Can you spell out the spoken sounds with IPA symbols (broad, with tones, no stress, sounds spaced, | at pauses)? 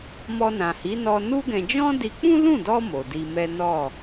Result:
m ɔ˧ n ã˨ h i˨˦ n ɔ˧ n u˦ ɡ ɛ̃˧ d͡ʒ ɔ̃˦ d i˧ k͡p ũ˦ l ũ˦˨ d ɔ˧ m o˨ d i˧ m ɛ˦ n ɔ˦˨